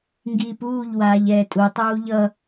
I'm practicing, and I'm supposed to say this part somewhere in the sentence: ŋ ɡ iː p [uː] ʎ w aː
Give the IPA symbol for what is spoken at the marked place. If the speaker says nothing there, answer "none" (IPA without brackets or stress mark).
uː